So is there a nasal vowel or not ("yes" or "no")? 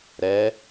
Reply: no